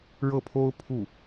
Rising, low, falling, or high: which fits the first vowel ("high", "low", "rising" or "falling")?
falling